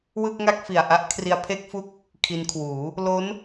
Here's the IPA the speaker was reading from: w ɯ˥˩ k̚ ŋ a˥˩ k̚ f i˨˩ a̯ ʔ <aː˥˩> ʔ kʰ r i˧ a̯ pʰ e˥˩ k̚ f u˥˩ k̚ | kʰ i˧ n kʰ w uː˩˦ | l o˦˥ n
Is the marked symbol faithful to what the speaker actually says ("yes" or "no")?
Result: no